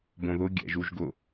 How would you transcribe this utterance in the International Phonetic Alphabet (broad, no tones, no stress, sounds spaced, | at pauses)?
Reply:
b õ ð ʊ ɡʲ ɛ̰ ʒ u ʒ ɡ ʊ